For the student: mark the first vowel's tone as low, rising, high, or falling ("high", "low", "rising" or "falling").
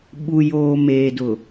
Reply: low